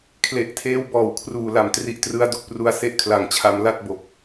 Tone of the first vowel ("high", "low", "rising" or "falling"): low